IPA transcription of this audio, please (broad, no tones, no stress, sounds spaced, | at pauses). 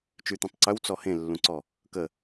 t͡ʃ y t̪ ẽ tˤ ǀ œ w t͡s ɔ h ẽ lː ũ ǀ ɔ | k ə